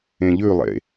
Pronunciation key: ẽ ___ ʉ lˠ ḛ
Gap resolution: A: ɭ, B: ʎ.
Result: B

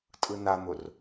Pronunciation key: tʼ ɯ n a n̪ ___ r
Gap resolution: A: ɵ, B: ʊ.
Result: B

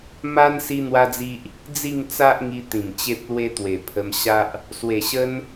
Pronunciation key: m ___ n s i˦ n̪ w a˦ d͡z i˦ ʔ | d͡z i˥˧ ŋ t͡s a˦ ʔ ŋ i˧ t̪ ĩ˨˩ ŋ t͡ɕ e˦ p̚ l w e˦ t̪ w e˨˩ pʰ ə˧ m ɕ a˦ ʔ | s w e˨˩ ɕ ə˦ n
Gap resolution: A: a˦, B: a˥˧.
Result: A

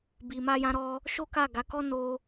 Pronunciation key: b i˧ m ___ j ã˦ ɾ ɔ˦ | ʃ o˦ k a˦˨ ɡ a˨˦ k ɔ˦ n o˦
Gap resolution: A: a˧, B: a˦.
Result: B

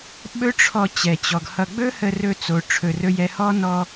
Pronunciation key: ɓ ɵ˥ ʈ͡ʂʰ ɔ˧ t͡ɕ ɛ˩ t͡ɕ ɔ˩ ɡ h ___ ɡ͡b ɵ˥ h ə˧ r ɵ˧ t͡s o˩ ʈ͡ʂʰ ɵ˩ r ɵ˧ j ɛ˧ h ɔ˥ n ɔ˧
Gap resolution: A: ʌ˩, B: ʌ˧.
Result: B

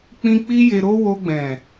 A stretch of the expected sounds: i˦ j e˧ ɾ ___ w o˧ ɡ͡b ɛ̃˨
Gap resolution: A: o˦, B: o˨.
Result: A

